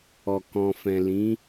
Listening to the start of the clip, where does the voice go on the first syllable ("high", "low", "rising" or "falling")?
low